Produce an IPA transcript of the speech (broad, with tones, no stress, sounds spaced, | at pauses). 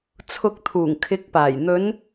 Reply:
t͡sʰ ʊ˨ k̚ t̪ʰ uː˨˩ ŋ kʰ ɪ˨˥ k̚ p aː˨˩ j n̪ ɵ˨˧ n